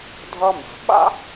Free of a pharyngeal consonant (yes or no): yes